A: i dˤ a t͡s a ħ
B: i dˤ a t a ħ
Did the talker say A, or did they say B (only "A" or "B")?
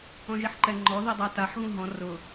B